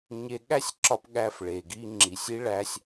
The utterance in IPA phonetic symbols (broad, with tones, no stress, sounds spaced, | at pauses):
ɲ e˧ ɠ æ˥ sʲ ǁ ɒ˧ p ɠ æ˧ f ɭ e˩ ɡ i˧ ŋ͡ǁ i˩ sʲ i˧ ɭ æ˧ sʲ